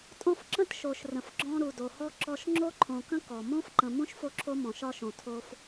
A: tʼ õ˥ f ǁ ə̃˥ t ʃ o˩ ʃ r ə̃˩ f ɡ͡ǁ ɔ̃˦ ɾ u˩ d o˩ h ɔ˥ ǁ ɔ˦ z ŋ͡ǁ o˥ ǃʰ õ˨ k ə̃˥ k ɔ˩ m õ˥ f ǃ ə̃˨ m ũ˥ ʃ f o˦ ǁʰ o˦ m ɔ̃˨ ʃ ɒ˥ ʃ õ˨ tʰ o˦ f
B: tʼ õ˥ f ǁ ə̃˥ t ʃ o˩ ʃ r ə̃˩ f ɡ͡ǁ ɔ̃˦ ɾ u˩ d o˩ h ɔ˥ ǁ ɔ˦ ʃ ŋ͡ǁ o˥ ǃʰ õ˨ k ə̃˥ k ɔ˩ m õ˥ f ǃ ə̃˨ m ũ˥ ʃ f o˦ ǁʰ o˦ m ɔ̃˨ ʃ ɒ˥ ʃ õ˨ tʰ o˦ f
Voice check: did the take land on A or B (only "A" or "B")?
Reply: B